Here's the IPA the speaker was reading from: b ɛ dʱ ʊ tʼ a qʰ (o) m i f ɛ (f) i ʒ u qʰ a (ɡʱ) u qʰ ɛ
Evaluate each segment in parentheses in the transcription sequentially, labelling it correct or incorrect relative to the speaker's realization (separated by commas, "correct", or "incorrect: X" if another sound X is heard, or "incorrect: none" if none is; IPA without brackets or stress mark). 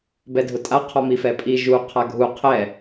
incorrect: ɔ, incorrect: pʼ, correct